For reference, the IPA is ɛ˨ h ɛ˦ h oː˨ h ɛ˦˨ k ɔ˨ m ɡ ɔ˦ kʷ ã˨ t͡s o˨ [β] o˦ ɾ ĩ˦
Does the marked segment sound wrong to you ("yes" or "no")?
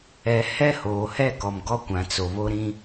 no